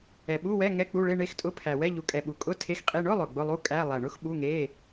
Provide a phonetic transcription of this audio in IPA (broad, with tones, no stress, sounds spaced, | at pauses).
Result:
ɛ˨˩ ɓ u˧˥˧ w ɛ˧˥˧ ŋ ɛ˧˥˧ k͡p u˧˥˧ ɭ e˧˥˧ ɳ e˧˥˧ x tʼ ʊ˧˥˧ pʰ æ˨˩ w ɛ˧˥˧ ʎ u˨˩ kʼ ɛ˨˩ ɓ u˨˩ kʼ ʊ˧˥˧ tʰ e˧˥˧ x qʼ e˧˥˧ ɳ ʊ˧˥˧ lˠ ʊ˨˩ ɡ͡b ʊ˧˥˧ lˠ u˧˥˧ kʼ æ˧˥˧ lˠ æ˨˩ ɳ ʊ˧˥˧ x ɓ u˧˥˧ ŋ e˧˥˧